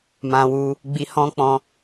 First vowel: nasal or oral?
nasal